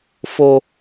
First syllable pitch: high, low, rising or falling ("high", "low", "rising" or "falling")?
high